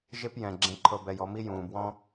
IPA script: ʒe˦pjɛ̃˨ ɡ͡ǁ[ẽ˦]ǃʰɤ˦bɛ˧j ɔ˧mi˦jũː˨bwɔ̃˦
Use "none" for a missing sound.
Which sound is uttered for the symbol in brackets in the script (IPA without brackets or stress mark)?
ẽ˦